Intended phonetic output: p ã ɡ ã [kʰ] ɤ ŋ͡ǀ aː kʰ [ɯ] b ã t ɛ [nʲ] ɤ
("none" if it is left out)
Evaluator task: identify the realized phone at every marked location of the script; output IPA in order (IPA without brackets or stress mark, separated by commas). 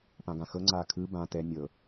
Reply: x, ɯ, nʲ